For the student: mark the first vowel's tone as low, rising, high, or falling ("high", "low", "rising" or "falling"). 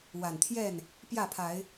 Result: low